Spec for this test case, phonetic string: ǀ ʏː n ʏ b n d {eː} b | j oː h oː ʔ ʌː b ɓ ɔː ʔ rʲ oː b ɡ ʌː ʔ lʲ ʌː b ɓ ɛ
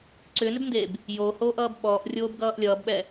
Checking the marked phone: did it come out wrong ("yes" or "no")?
no